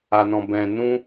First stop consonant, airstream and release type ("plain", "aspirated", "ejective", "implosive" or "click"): plain